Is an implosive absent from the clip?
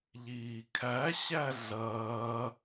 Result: yes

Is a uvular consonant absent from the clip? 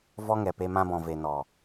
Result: yes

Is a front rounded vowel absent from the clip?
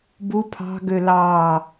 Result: no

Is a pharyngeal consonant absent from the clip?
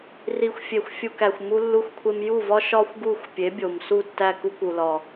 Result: yes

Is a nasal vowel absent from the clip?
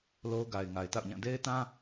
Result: no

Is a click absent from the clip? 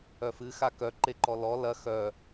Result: no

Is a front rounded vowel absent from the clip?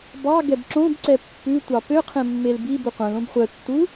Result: no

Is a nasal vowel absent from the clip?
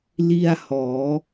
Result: yes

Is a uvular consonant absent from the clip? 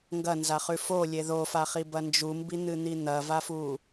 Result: no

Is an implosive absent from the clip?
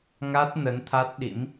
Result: no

